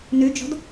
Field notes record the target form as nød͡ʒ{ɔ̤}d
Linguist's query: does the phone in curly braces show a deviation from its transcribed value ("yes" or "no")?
no